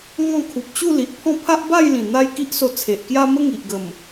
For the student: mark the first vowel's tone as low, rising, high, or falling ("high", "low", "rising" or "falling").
falling